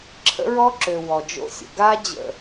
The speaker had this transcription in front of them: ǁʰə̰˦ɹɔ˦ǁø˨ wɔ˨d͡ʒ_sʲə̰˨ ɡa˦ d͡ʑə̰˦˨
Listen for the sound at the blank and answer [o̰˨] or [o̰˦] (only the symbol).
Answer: o̰˦